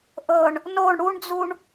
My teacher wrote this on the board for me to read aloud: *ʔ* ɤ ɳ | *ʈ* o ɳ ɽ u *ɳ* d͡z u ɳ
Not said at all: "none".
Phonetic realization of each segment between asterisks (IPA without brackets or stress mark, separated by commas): ʔ, n, ɳ